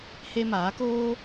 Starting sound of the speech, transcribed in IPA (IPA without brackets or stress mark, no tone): h